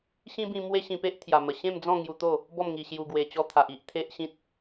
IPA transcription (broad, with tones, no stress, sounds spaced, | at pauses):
ɕ ĩ˦ b ĩ˧ m w e˦ ɕ ĩ˧ p e˦ ʔ t̪ʰ j a˨˩ m ə˨˩ ɕ ẽ˥˧ m d͡z ɔ̃˥˧ ŋ j u˧ t̪ o˥˧ | b ɔ˥˧ m ŋ i˧ ɕ j u˧ ɡ w e˨˩ t͡ɕ ɔ˧ t̪ʰ a˨ ʔ i˦ ʔ t̪ʰ e˦ ʔ ɕ ĩ˦ t̚